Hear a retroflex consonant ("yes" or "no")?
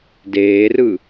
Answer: no